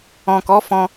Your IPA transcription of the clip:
ɔ̃˨ kɔ˨˦fɔ̃˧

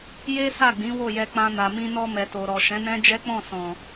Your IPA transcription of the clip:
je˦ sa˦˨ɡ͡bĩ˨˦ wo˦˨jɛ˧k͡pã˧ na˨mĩ˧nɔ˧ mɛ˨to˨ɾɔ˨ ʃɛ̃˨˦nɛ̃˦ d͡ʒɛ˦k͡pɔ̃˦˨sɔ̃˨

